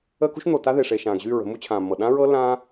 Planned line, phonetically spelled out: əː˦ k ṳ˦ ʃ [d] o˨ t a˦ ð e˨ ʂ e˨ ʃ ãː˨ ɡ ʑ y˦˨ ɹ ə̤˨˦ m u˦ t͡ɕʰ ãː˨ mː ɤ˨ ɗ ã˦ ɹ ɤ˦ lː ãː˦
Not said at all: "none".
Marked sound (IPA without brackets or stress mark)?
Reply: n̪